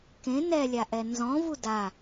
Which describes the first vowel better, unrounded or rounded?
unrounded